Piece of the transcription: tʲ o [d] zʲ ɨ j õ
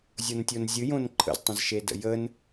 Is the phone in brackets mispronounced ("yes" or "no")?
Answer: yes